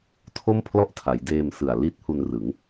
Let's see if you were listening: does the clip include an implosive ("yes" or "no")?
no